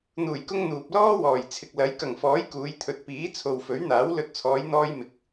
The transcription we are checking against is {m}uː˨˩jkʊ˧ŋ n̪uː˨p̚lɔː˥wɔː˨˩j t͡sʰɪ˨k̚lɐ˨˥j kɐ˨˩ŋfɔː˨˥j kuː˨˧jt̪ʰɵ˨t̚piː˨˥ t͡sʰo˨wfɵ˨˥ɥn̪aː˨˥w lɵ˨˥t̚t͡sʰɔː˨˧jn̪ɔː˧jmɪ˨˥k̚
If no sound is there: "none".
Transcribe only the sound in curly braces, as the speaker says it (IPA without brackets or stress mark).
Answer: n̪